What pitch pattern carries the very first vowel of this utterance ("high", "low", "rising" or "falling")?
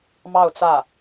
falling